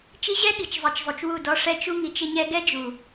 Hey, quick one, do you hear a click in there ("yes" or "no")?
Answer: no